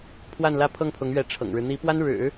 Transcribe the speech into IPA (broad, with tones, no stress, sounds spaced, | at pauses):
pʰ w a˥˧ n l ä˥˧ pʰ ɤ˥˩ ŋ pʰ ʊ˧˥ ŋ ɥ ɛ˧˥ ʈ͡ʂʰ ɤ̰˨˩ ŋ ɻ ɻ̩˦ n̪ i˧˥ p w a˥ n ɻ ɻ̩˨˩˦